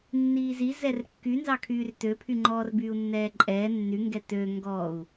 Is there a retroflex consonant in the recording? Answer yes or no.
no